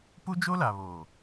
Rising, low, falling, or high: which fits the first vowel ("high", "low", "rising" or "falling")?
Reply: high